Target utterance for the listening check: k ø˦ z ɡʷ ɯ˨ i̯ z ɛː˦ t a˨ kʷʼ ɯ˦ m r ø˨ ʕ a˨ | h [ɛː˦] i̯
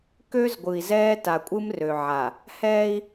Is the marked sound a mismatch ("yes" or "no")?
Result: no